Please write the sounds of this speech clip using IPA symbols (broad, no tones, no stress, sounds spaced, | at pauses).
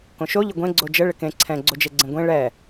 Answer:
k õ ʃ o ʎ ə ɡʷ ẽ ɡ͡ǀ o d͡ʒ ə ɭ ɪ k ẽ ǀʰ ɛ̃ ɡ͡ǀ o d͡ʒ e ɡ͡ǀ ẽ ɡʷ ẽ ɭ ɛ